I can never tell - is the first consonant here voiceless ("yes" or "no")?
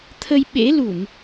yes